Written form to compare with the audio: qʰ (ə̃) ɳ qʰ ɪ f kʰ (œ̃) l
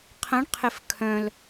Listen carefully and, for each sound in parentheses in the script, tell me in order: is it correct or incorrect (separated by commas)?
correct, correct